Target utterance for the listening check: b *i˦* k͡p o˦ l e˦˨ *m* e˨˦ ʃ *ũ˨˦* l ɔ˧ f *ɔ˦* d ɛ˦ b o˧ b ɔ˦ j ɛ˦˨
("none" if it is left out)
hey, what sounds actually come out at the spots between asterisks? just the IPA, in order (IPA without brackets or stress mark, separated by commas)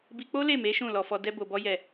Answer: i˧, m, ũ˦˨, ɔ˦